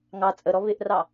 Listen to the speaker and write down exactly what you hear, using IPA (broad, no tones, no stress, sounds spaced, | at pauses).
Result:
ŋ ɑ t͡sʼ ə ɾ ɔ β ɪ ʔ r ɑ